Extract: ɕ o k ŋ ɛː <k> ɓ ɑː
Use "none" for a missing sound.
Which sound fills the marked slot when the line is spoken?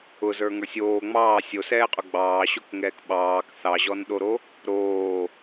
k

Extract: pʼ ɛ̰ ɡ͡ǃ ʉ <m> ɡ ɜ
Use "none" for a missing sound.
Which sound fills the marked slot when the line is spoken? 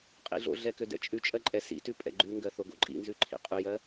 ŋ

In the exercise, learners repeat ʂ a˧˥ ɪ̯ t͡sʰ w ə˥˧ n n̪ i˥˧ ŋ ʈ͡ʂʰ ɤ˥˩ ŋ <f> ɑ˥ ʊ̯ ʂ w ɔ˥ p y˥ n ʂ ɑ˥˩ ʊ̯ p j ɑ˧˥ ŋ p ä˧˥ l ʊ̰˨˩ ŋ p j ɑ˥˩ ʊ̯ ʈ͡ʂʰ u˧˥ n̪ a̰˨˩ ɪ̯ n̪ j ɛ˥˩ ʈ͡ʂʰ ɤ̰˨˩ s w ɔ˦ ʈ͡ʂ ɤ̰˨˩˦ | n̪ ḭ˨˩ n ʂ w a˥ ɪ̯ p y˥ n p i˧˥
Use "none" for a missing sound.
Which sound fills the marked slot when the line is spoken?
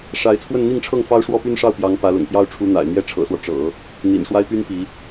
f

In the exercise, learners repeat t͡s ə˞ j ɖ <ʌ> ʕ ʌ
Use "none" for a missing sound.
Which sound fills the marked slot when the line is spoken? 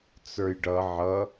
ʌ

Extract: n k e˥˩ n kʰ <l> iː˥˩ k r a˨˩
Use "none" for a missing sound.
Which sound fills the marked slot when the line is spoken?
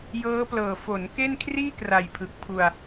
r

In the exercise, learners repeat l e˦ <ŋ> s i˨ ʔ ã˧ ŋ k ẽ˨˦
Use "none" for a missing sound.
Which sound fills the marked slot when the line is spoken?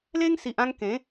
ŋ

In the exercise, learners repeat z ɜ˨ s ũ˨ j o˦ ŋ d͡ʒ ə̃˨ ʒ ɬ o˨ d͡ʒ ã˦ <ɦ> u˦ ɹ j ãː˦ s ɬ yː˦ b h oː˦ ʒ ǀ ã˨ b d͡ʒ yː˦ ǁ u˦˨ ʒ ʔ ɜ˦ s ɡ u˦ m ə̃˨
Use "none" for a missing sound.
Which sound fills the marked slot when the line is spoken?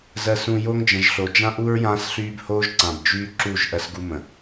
ʔ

